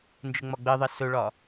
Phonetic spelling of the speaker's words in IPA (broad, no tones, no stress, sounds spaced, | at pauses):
n d͡ʒ ɘ ŋ͡m ɒ ɡ͡b ɘ ðˤ ɘ s ɵ ɭ ɒ